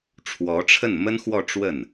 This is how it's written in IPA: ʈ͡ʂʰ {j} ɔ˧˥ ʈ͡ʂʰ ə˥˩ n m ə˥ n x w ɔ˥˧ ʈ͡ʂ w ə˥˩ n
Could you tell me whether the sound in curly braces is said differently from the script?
yes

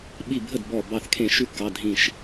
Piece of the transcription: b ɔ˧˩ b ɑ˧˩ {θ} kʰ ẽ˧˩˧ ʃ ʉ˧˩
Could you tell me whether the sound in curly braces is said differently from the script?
no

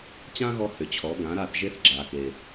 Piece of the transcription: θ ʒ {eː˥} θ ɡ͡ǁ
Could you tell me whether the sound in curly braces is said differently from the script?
yes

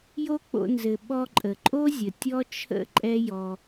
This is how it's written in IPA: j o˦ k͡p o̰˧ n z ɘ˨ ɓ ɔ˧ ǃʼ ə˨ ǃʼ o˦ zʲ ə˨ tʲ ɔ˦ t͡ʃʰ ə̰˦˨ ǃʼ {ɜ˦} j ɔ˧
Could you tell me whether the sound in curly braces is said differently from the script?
yes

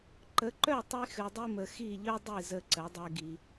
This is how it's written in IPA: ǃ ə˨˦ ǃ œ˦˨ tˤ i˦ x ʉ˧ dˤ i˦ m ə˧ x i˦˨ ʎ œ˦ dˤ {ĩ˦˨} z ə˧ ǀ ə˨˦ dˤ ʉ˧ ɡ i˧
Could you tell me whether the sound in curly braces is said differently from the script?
yes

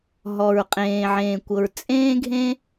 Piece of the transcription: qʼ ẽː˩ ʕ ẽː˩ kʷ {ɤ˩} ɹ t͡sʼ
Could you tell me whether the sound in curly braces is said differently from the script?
no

